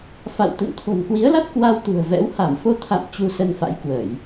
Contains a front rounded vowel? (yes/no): no